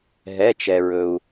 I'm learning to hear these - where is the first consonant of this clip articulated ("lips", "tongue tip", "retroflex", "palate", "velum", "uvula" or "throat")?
throat